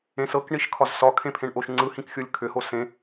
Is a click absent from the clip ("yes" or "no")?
no